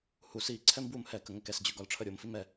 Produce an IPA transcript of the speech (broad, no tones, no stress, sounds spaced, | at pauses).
h u s i ǀʰ ɛ m b w u m h ɛ k ə ŋ ə k ɛ s d͡ʑ ʉ ɡ ɒ l ʈ͡ʂʰ ə ɾʲ o m f i m ɛ